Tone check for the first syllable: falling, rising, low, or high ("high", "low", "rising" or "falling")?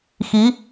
rising